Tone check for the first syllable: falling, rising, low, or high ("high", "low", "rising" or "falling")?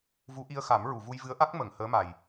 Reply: rising